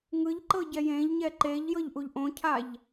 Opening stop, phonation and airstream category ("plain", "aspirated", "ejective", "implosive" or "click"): click